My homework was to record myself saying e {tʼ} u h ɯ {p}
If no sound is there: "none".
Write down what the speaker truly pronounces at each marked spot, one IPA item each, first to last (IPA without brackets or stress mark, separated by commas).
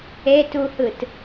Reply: t, t